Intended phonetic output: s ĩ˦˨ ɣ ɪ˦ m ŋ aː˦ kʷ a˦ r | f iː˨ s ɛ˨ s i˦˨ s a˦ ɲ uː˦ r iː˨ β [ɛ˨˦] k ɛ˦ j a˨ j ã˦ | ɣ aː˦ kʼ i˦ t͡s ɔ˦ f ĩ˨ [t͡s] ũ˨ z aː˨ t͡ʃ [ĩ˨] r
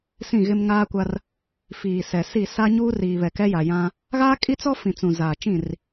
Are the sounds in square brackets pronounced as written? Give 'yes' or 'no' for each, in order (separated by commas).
no, yes, no